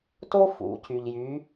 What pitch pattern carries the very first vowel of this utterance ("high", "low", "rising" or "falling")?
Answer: high